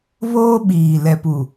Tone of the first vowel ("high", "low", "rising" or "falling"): high